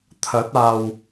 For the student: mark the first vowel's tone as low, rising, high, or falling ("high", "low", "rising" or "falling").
rising